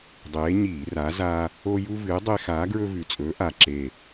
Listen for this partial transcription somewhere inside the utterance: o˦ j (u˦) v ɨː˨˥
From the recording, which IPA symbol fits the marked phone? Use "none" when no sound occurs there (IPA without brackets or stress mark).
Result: u˦